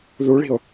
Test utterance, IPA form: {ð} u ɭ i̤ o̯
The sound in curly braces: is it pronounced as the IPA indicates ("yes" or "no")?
yes